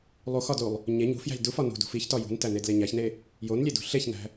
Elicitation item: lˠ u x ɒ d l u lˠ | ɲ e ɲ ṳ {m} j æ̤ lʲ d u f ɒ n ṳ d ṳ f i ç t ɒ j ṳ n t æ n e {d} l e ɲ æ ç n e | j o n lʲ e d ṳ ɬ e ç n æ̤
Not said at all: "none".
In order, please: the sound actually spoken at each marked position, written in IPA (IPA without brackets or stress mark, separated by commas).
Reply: f, d